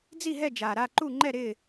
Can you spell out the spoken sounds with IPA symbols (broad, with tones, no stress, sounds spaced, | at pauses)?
d͡z i˥˨ ɦ ɛ˥˨ d͡ʒ aː˨ ɾ a˥˨ ǃ u˥˨ ŋ͡ǃ ɛ˥˨ ɾ ɪː˥˨